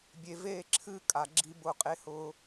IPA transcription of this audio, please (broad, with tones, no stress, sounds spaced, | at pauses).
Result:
bʲ e˨ v eː˦˨ ǁʰ ɨː˦ kʼ a˨ ɡ͡ǁ i˦ b ʊ˦˨ qʼ e˦ h ʊː˦